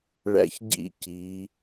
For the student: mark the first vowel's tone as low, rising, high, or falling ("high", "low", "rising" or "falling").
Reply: high